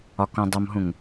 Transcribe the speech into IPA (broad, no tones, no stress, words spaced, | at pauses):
ɒkõdˤʌmɦũŋ